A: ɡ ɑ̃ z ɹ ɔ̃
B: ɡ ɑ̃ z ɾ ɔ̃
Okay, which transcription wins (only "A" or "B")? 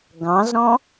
B